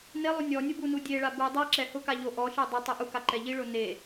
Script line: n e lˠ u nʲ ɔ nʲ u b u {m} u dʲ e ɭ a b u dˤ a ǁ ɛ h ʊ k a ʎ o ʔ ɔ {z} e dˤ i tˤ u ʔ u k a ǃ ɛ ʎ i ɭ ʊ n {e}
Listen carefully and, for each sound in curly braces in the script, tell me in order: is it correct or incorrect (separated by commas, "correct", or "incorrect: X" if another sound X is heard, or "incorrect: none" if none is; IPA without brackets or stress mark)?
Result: incorrect: n, incorrect: ʃ, correct